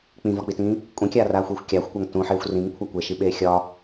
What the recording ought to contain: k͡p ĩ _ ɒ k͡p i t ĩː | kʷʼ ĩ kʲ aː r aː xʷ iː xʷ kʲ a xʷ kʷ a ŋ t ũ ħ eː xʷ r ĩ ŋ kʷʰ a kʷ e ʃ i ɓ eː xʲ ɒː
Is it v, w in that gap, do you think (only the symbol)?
v